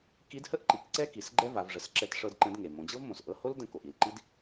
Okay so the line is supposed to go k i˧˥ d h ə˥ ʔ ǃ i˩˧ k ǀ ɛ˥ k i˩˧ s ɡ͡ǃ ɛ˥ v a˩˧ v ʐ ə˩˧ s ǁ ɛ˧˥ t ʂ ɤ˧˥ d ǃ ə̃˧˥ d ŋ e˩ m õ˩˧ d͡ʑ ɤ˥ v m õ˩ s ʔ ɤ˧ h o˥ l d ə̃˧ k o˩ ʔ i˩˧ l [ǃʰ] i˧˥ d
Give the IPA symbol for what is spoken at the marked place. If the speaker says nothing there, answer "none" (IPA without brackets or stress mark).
ǃ